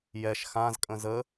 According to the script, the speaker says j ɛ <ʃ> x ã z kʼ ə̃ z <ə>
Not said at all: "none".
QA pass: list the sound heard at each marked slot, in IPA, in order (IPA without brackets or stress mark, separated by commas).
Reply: ʃ, ə